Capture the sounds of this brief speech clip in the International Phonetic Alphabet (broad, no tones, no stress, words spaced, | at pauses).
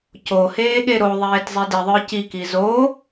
coheːɠe ɾoðˤeːtzˤe diðˤə˞ ciki zoː